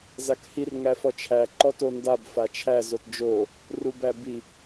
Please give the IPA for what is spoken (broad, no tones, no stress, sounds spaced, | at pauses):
z a k h i r ŋ æ f ɔ t͡ʃʰ æ ǃ ɔ t o n d a b f a t͡ʃʰ æ z o t d͡ʒ o | r u b æ b i